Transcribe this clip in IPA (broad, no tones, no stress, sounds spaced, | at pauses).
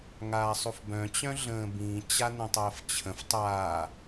ŋ aː sˤ u f b œ̃ t͡ɕ œ̃ ɮ ə̃ː b ĩ t͡ɕ a n ə̃ tˤ əː f t͡ɕʰ ə̃ f tˤ aː